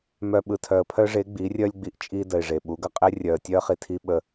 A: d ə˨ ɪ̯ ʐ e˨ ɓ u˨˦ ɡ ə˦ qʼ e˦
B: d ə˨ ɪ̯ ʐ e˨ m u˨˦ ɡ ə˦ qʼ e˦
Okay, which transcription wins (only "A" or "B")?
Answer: A